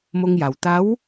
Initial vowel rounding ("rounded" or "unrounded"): rounded